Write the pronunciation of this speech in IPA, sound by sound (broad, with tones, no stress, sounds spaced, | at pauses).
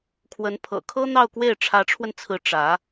kʰ w ə˧˥ n pʰ ɤ̰˨˩ kʰ ɤ˥ n̪ ɑ˥˧ ʊ̯ k w e˥˩ ɪ̯ ʈ͡ʂʰ ä˧˥ ʈ͡ʂʰ w ə˧ n t͡sʰ ɹ̩˧˥ ʈ͡ʂ ä˧˥